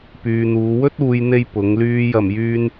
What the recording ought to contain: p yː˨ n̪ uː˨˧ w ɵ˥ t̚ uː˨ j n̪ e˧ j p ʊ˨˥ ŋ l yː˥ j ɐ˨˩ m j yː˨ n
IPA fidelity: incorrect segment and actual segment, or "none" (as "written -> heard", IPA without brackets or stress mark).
none